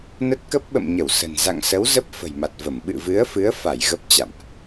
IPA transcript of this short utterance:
n ə˦˥ t̚ k ə˦˥ p̚ ɓ ə̰˧˨ m ɲ ə˧˩ w s ə̤˨˩ n z a̰˧˨ ŋ s ə˨˦ w z ə˦˥ p̚ f ə̤˨˩ j m a˨˩ t̚ v ə˧˩ m ɓ ɨ̰˧˨ v ɨ˨˦ ə̯ f ɨ˨˦ ə̯ f a˧˩ j ɣ ə˦˥ p̚ t͡ɕ a̰˧˨ m ʔ

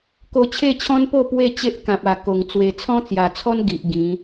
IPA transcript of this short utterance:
k o˧ t͡ɕʰ e˥˧ t͡ɕʰ ɔ̃˦ n p o˥˧ p w e˥˧ t͡ɕ e˦ ʔ k ã˨ p̚ a˨˩ k o˨˩ ŋ t͡s w e˨˩ t͡sʰ ɔ̃˦ t͡s j a˨˩ t͡sʰ ɔ˦ n ɡ i˨ ʔ ɡ ĩ˨˦

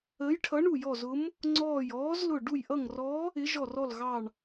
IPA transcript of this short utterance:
əː˧˥ j ʈʰ ʌ˧˥ ɳ u˦˨ j ɔ˦˨ z ʊ˧˥ m | ŋ͡ǀ ɔː˦˨ j ɔː˧˥ z l ʊ˦˨ ɖ u˦˨ j ʔ ʌ˦˨ ŋ r ɔ˧˥ | ɪ˧˥ ʒ ɔ˦˨ r ɔ˦˨ l ɣ ɑ˦˨ ɳ

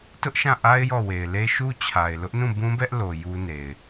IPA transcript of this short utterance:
t ʊ˦ ʔ ʃ ã˦˨ ʔ a˦ ɪ̯ j ɔ˦˨ w e˨ ɪ̯ l e˦ ʃ u˦ t͡ɕʰ a˨ ɪ̯ l ʊ˦ ʔ n ũ˦˨ b ũ˦ b ɛ˦ ʔ l o˨ j u˦ n e˨ ɪ̯

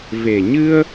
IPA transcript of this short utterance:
v e˨˩ ɲ ɨ˧ ə̯

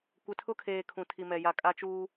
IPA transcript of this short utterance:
kʷ ɪ˨ tʰ ʊ˦ kʰ eː˨ kʰ ũ˨ tʰ i˨ m ɛ˨ j a˨ kʼ a˦ t͡ʃ uː˦

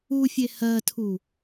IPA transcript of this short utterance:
u fʲ e h ɜ tʰ u

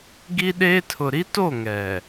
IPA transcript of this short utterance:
ɡ i˦ ɗ eː˦ tʰ ʊ˨ ɾ i˦ t o˦˨ ŋ ɛ˨

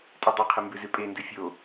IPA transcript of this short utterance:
tʼ e dˤ o qʰ ɨ m b ʉ z ʉ pʼ e n d ʉ fʲ o

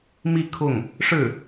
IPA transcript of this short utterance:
m i˥˧ kʰ ʊ˥˩ ŋ | ʂ ɻ̩˥˩

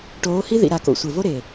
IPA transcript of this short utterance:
ʈ oː˨˦ h i˦ ð ḭ˨ ɾ a˨ k o̰˨ sʷ ɪ˨ v o˦ ɾ e˨

